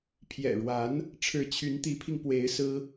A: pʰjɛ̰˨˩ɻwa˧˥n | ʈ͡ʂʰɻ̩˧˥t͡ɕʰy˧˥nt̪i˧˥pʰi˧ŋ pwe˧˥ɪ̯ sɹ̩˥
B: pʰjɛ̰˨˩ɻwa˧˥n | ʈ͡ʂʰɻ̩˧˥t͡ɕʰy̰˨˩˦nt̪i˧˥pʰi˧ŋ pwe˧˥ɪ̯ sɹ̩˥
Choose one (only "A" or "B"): A